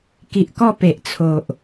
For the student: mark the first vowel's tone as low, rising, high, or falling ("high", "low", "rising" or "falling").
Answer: low